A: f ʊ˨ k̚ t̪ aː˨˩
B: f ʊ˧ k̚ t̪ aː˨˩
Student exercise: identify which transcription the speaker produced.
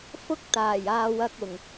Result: B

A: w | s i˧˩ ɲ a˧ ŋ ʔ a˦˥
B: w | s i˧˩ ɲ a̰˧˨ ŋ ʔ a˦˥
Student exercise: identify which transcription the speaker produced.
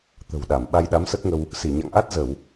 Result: B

